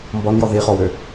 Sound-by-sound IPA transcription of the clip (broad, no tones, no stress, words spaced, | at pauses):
mbɔnjɔ ðiχɔwø